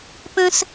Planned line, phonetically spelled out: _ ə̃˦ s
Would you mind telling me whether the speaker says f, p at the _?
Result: p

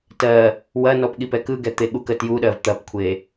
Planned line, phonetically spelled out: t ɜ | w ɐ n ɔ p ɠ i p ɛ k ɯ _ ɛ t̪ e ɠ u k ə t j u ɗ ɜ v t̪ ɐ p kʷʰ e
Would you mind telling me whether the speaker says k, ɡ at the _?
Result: ɡ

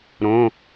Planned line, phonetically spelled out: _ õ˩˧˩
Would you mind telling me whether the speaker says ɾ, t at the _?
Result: ɾ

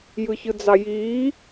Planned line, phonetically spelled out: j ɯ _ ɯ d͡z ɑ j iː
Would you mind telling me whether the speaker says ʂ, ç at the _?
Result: ç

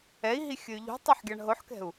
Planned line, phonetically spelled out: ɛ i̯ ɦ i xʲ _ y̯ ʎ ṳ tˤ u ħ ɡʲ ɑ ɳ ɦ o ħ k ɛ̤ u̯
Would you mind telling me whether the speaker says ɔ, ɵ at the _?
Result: ɵ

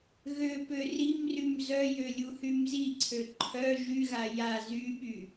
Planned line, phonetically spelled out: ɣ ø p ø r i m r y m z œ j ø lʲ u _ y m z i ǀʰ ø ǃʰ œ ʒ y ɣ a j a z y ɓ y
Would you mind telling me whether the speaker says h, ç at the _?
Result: h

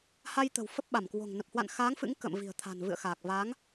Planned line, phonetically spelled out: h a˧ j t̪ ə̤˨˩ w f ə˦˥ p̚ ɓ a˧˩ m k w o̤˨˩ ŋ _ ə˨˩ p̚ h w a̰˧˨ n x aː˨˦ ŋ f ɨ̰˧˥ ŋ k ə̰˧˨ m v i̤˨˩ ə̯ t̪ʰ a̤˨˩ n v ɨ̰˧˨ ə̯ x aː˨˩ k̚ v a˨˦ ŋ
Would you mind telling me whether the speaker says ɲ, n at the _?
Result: n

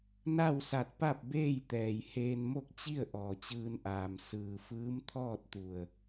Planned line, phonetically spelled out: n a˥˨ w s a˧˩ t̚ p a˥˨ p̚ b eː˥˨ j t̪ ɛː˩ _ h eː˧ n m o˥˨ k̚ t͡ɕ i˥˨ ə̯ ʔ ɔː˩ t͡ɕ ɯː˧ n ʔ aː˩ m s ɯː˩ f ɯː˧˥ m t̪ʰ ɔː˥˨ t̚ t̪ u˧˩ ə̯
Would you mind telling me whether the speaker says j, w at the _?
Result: j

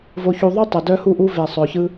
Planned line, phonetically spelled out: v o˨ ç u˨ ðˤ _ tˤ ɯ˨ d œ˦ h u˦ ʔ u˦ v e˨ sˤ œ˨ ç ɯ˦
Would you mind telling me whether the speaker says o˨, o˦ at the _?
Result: o˦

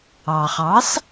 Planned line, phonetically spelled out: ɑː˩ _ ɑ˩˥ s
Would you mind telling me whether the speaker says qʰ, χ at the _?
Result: χ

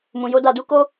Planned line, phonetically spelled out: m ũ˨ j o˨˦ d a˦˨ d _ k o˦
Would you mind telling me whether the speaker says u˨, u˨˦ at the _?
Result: u˨˦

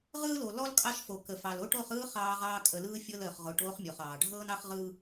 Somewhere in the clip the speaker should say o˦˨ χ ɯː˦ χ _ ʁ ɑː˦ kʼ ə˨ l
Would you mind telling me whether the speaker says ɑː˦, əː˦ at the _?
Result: ɑː˦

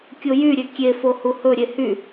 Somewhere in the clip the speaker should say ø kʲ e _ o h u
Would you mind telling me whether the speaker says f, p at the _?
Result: f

